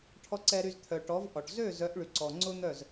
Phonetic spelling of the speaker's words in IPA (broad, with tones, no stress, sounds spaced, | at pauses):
ʈʰ ɔ˨ ǀ ɛ˨ ɾ y˨ z t̪ʰ œ˨ ʈ ɔ˨˦ v ʔ ɔ˨ ʈ z ø˦˨ z œ˨˦ ʔ ɭ y˨ ǀ ɔ˨ ŋ͡ǀ ʊ˦ n̪ œ˦˨ z